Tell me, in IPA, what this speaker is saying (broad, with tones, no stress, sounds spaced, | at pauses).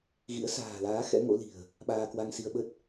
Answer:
ɣ ḭ˧˥ ə̯ s a̤ː˨˩ l aː˨˦ x ɛ̰˧˥ ŋ o̰˧˥ l i̤˨˩ ə̯ | ɓ aː˧ k w a˧ ŋ s i˧ ə̯ ɓ ə˦˥ t̚